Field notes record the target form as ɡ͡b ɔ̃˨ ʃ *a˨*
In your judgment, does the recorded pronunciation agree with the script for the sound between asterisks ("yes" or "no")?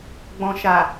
yes